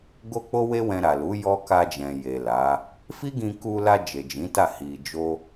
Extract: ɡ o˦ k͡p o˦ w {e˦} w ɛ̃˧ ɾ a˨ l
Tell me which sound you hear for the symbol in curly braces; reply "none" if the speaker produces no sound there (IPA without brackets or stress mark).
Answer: e˦